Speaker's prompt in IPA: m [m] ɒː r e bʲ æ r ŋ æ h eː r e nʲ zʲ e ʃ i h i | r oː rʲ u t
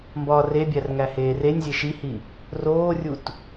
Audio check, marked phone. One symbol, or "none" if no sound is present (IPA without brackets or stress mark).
b